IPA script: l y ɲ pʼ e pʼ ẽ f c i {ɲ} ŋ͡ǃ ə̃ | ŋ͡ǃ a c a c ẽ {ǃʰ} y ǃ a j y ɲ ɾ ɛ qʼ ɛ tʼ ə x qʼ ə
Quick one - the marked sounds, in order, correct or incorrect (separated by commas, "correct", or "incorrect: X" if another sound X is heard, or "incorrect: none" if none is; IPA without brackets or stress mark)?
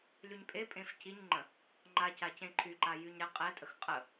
correct, correct